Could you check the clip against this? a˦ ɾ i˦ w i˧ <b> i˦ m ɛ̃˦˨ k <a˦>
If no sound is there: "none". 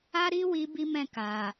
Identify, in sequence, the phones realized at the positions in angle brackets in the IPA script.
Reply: b, a˨

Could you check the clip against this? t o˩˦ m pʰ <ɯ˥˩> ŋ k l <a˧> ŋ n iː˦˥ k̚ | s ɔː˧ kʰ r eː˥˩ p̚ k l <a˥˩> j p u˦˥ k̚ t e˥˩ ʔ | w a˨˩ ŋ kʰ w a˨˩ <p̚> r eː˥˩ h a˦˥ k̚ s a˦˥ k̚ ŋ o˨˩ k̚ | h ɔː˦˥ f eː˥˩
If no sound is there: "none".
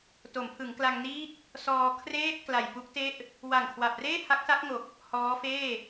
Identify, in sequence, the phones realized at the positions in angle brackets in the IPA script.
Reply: ɯ˩˦, a˧, a˨˩, p̚

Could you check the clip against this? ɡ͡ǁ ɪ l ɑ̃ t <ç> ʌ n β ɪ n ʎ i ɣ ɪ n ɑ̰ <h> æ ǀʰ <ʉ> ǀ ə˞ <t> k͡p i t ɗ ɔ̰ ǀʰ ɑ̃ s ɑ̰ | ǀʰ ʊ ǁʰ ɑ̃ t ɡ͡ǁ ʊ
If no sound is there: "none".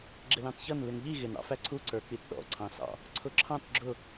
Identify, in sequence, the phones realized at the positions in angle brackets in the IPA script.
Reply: ç, f, u, none

